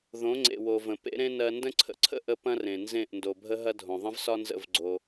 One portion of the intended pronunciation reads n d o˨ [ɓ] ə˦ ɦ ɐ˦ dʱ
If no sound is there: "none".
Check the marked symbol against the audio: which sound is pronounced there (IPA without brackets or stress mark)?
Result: bʱ